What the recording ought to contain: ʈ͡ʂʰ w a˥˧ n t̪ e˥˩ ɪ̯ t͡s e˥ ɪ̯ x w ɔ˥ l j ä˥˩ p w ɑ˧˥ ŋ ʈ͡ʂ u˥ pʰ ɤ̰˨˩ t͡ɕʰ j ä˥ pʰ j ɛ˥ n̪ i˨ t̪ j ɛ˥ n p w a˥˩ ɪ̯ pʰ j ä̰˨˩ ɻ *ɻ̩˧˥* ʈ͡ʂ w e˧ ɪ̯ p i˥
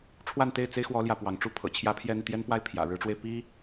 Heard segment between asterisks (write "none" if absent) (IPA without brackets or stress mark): ɻ̩˧˥